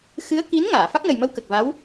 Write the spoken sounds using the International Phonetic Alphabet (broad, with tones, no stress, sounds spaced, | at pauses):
x ɨ˧˥ ə̯ k i˧˥ n ŋ aː˨˩˨ f a˦˥ k̚ n ə˨˩ j m ə˧ w k ə˨˩ k̚ v a˧˥ w